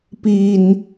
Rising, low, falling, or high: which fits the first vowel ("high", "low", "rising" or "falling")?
low